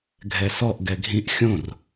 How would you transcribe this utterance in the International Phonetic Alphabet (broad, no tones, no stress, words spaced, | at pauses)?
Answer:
ɡʱɛsɔʔ ɡɛɡʱĩʔ xʲõr